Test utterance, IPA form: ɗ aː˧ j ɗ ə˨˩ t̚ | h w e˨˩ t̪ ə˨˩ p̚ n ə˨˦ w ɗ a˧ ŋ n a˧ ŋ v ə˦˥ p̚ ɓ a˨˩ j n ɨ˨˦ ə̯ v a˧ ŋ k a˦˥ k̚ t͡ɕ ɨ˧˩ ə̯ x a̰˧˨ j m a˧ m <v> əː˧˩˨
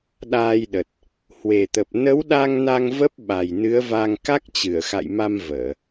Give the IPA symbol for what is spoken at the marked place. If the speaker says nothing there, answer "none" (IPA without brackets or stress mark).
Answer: v